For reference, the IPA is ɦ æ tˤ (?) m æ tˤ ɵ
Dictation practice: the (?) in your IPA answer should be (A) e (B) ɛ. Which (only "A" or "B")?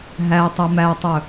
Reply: B